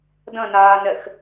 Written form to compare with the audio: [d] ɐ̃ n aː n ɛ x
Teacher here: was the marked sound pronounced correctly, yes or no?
yes